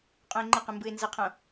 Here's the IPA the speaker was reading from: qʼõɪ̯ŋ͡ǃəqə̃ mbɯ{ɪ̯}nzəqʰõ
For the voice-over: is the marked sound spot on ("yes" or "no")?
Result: yes